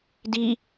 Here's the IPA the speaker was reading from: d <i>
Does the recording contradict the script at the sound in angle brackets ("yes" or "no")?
no